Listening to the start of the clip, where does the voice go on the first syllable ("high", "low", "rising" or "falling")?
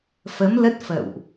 rising